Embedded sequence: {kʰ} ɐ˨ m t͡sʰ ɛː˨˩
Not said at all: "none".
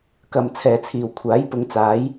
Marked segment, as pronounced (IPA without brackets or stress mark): k